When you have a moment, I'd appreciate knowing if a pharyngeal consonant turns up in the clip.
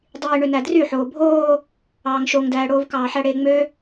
yes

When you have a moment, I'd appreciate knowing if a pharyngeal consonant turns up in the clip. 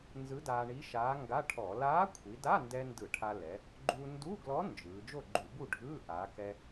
no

